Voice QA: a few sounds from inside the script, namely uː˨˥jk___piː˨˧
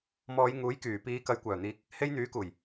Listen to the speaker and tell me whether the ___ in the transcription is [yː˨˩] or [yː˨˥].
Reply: yː˨˩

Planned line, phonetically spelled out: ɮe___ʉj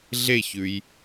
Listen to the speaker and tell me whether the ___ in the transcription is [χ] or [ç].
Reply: ç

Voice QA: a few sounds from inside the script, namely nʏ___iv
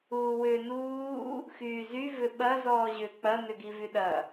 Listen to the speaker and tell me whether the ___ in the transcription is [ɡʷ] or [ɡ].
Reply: ɡ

